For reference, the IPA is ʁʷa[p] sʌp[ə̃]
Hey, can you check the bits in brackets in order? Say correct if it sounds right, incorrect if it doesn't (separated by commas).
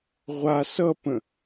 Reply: incorrect, correct